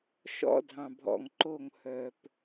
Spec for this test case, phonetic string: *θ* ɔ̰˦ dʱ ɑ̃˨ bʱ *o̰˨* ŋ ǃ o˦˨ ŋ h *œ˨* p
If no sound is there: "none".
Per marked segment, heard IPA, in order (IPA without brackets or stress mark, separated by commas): ʃ, ɔ̰˨, œ˨